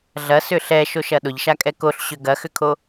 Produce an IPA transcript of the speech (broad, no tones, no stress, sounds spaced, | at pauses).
ɮ ɐ s ʏ ɬ ɛ ʃ o ʃ ɐ ɗ ʊ ʎ ʃ a kʼ ɛ k o ɬ ɕ ʏ ɡ ɐ x ʏ kʰ o